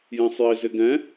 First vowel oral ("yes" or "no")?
no